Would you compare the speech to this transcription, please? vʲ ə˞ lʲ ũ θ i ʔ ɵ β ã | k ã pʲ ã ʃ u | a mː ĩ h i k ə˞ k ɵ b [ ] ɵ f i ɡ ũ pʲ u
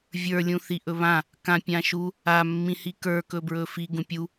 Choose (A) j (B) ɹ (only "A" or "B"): B